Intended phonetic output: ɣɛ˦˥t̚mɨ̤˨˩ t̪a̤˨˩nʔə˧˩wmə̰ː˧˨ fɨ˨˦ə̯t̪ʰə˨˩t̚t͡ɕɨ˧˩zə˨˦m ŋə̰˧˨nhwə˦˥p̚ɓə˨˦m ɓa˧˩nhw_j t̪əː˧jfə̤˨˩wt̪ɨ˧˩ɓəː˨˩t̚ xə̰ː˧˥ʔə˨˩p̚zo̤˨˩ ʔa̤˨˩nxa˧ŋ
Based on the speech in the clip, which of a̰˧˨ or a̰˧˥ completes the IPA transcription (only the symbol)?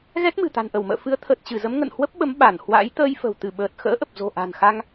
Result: a̰˧˥